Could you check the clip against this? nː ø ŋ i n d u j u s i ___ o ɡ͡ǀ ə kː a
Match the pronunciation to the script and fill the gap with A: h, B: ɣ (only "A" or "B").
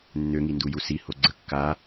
A